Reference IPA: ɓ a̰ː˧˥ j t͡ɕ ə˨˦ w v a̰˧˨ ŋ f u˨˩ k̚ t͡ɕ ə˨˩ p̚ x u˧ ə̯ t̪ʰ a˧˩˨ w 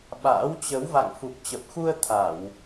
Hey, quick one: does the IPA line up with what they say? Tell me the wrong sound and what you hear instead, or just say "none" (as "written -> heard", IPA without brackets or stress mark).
j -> w